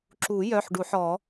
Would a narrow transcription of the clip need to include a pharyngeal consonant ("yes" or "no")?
yes